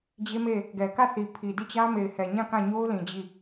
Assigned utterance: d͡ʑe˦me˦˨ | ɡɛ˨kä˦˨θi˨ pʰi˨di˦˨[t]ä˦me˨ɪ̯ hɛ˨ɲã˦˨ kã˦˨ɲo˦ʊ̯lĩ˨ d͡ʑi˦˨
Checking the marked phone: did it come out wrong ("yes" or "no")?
yes